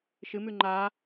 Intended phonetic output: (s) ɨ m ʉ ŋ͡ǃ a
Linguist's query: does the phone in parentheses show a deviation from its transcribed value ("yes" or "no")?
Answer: yes